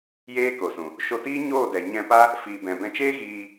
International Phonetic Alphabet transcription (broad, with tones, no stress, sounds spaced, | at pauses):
j eː˦ k o˨ s ũ˨ | ʃ o˧ t iː˦ ɲ oː˦˨ d ɛ˨ ɲ ɛ̃˧ p a˦ | f iː˨ b ɛ̃˨ b ɛ̃˧ t͡ʃ eː˦ ɣ iː˧